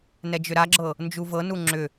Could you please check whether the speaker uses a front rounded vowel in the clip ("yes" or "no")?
yes